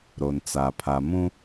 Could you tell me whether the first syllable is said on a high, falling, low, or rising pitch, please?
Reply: low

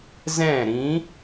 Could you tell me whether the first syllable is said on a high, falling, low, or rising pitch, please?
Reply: falling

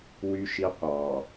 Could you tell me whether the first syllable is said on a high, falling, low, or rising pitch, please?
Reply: high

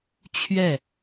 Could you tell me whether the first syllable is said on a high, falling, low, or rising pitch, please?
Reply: falling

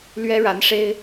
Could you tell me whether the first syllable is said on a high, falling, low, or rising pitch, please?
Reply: high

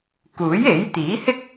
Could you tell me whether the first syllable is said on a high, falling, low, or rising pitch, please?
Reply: rising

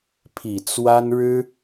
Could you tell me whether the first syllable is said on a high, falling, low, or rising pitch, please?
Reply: low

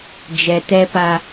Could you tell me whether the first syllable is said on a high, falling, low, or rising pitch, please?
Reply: low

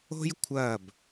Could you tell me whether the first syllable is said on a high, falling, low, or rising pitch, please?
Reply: high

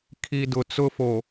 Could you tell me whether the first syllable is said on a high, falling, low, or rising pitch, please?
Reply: low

